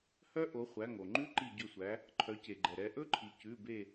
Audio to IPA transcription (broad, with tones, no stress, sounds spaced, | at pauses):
h œ˦˥ ʔ o˩˧ χʷ æ˩˧˩ ŋ o˩ ŋ͡ǃ ʉ˦˥ ǃ i˧˩ ɟ ɵ˧˩ sʷ æ˩˧ | ǃʰ œ˩˧ c e˩ ɡ͡ǃ ɛ˩ ɾ ɛ˩˧ ʔ ɵ˦˥ ǃʰ i˩ c ʉ˩˧˩ b e˧˩